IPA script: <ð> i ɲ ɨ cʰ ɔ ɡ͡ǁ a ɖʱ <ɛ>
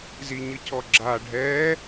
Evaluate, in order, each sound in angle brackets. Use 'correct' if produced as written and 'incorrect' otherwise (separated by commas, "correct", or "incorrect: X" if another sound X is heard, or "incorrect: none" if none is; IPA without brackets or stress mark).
incorrect: z, correct